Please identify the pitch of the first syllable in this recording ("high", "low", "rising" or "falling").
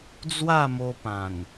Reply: falling